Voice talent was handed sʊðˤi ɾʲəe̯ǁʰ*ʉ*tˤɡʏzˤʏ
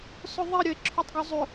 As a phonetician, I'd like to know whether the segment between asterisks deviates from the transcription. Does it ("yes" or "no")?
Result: no